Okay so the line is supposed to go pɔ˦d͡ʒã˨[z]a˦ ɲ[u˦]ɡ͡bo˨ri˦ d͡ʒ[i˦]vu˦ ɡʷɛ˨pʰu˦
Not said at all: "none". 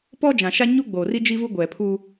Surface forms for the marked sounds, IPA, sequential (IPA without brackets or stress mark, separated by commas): ʃ, u˦, i˦